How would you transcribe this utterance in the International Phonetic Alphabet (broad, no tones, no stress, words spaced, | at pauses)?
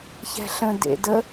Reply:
çɛ̤ɬə̃ dḛdə